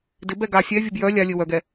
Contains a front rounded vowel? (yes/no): yes